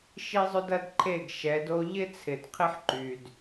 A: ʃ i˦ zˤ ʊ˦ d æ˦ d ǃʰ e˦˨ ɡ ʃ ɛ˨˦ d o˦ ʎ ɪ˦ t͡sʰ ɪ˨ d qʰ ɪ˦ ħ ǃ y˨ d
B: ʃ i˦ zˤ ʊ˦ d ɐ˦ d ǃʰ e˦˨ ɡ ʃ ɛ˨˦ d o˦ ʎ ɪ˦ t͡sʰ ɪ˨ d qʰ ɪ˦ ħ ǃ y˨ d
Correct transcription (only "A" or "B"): B